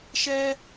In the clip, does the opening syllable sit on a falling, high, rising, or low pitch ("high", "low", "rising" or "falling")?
high